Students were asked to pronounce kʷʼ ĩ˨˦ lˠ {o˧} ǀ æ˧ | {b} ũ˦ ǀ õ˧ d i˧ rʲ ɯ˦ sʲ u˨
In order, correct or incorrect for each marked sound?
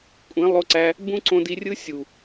correct, correct

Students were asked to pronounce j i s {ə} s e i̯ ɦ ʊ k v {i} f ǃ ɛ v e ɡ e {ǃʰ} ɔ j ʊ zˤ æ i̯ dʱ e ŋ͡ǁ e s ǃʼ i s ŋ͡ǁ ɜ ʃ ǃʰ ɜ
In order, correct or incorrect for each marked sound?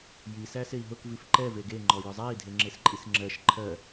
incorrect: æ, correct, incorrect: ŋ͡ǃ

